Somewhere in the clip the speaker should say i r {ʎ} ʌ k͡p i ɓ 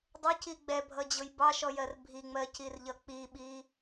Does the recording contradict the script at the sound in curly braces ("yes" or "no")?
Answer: no